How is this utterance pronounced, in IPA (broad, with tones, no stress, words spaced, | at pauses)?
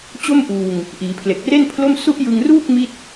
t͡ɕo˥˩mʔuː˧ŋ | ʔiː˩˦pʰle˨˩k̚re˥˩npʰlo˥˩m su˦˥ʔjɯ˧ŋruː˥˩k̚ mi˥˩t̚